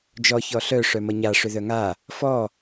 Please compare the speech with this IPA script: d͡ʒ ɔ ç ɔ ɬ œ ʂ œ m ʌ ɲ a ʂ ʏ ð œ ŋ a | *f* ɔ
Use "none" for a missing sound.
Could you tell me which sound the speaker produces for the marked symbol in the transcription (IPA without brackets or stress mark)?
f